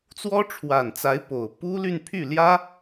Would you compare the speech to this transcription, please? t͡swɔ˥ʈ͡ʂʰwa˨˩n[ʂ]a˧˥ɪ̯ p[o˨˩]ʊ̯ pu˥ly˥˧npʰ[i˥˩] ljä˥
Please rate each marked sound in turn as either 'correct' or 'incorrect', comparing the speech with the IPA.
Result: incorrect: t͡s, correct, incorrect: y˥˩

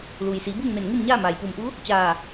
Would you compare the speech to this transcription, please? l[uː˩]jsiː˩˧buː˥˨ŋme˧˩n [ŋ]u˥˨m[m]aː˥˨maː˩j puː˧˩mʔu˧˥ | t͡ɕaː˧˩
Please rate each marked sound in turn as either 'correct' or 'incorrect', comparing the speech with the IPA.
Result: correct, correct, incorrect: ɲ

